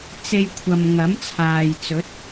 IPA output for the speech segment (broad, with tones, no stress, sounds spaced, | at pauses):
t͡s e˧ j kʷʰ ɐ˨ m ŋ ɐ˨˥ m t͡sʰ aː˨ j t͡s ɵ˨˥ t̚